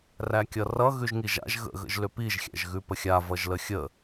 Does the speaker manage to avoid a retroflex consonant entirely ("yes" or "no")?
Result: yes